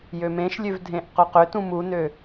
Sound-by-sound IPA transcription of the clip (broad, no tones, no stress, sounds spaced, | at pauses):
j ø m ẽ ʃ lʲ ø v dʱ ẽ ʔ q ɵ q ʏ t ũ m u n ø